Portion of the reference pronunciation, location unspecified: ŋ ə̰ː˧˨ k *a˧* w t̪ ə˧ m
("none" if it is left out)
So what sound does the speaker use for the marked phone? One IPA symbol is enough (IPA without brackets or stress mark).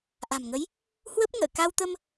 a˧